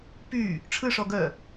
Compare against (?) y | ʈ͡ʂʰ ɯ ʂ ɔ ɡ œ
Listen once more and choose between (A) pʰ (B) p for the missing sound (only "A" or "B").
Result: B